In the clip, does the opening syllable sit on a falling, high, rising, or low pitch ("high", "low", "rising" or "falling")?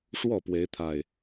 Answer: falling